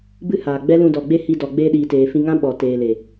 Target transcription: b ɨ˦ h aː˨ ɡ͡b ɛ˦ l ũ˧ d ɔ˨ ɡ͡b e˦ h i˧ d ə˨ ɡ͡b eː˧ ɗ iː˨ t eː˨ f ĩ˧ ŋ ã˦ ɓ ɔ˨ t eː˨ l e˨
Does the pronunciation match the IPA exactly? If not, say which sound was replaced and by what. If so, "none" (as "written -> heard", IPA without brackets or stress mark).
ə˨ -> ɔ˨